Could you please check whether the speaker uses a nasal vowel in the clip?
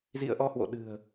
no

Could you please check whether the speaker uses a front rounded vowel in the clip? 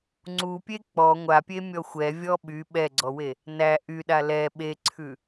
yes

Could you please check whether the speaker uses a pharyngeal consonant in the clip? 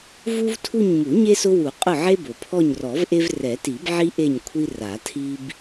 yes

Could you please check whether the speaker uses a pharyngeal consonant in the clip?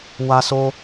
no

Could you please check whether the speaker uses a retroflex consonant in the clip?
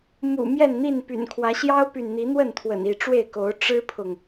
yes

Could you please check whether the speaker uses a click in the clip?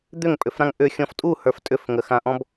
no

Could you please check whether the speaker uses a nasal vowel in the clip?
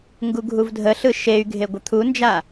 no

